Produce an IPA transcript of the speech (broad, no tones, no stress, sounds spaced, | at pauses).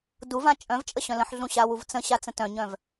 d u v ã t͡ʃʼ œ̃ v t͡ʃʼ ə ɕ œ̃ l ə̃ ħ ɮ ũ ɕ a w u v t͡s ə̃ ɕ a t͡s ə̃ t œ̃ ɲ œ̃ v